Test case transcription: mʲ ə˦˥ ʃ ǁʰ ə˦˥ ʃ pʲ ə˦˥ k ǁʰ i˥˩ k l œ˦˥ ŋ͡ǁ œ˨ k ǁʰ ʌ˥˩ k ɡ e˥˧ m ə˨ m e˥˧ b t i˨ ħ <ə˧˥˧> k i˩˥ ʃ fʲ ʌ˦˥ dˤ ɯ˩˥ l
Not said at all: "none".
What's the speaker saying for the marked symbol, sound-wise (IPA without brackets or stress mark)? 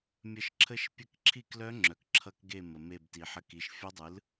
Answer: ə˧˥˧